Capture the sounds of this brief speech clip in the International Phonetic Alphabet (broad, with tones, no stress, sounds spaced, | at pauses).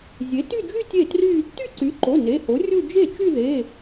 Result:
zʲ e˩˥ t y˥˧ d͡ʒ y˥˧ tʲ e˥˩ t r y˥˧ | t y˥˩ ǀ y˩˥ ǃ o˩˧˩ n e˩˧˩ h o˩˥ rʲ u˥˧ d͡ʒ e˥˩ t͡ʃ y˥˧ ð e˩˧˩